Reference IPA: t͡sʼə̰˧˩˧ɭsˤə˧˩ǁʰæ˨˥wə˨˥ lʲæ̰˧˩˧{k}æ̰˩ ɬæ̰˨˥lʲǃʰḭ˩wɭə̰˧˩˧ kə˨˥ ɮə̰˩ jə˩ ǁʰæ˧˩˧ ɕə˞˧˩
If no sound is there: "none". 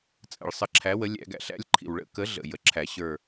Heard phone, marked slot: ɡ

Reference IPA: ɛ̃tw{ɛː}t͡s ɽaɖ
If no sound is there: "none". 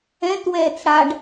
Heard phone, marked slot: ɛː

